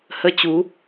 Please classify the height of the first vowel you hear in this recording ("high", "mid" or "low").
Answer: mid